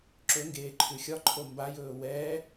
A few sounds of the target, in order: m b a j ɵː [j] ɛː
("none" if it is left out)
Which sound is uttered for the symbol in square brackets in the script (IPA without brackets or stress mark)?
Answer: w